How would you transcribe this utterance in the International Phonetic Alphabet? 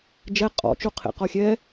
d͡ʒɛ qʼɔ̰t͡ʃu qʰḛqɔxʲɛ

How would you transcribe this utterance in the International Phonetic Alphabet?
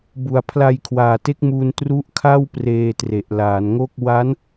bu˩˦a̯pʰla˧jkʰwaː˨˩te˦˥k̚ muː˧ntru˦˥ʔ kʰa˥˩wpreː˧ tre˨˩ʔlaː˩˦nŋo˥˩k̚ wa˦˥n

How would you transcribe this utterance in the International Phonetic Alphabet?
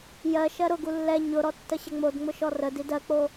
jɜ ʃɜɾʊɡu lːɛ ɲʊɾɔ tːəɕəŋ͡modŋ͡mʊ ʃɔrədi dɜk͡po

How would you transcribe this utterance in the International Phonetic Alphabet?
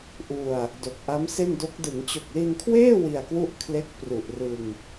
ʔu˧a̯ | do˨˩k̚ʔa˦˥mse˥˩ndo˦˥k̚ dɯ˩˦ŋt͡ɕo˨˩k̚li˧nkʰweː˥˩ wi˧a̯kwu˥˩ʔkʰle˦˥k̚ pru˨˩ʔrɯ˧ŋ

